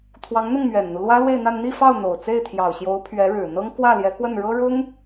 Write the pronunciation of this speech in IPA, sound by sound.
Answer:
t̪ʰwɑ˧˥ŋn̪ʊ˥˩ŋmɥɛ˨˩nn̪u˦ lwä˥lwe˥˧ɪ̯n̪a˥˧n n̪i˥˧fɑ˥˩ʊ̯n̪o˨˩ʊ̯ t͡se˥˩ɪ̯t̪ʰjɑ˨˩ʊ̯ɕjo˧˥ʊ̯ pʰɥɛ˧˥ɻɻ̩˨˩n̪ɤ˥ŋ kwä˥˩ljɛ˧˥kwə˥˩nɻɤ˥ ɻʊ˥ŋ

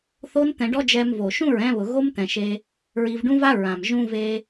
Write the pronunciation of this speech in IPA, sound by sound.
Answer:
θo˦n t̪ɛ̃˧ɖɔ˦d͡ʒɛ˧mvo˨ ʃũ˦˨ɹɛ̃˧βʊ˨ ɣo˦mt̪ɛ̃˨ʃe˧ | ɹi˧vɖũ˦va˦ ɹã˨m ʒũ˧ve˧

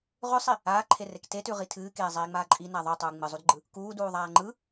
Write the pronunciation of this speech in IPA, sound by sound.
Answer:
ʁʉsˤi | aːǃʰerek tetʉʁi tʰɨːkeːzˤiːŋ͡maː ǃʼina ðˤʉtˤuː ŋ͡mɨzˤudɡ͡ǃɯ | kuːduːðˤaː ŋ͡ǃɯ

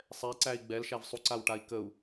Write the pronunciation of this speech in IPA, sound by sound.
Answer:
sˤɛǀæi̯ ɡ͡bɛlʃæv sˤuǀawʈai̯ kəu̯

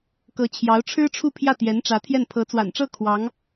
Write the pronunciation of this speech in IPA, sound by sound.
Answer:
kɤ˧˥t͡ɕʰjɑ˧˥ʊ̯ ʈ͡ʂʰɻ̩˥ʈ͡ʂʰu˥˧pʰjä˥˩t̪jɛ˧˥n ʈ͡ʂä˧˥t̪ʰjɛ˥˩n pʰɤ˧˥t͡swa̰˨˩nʈ͡ʂɤ˥˩ kʰwɑ˧˥ŋ

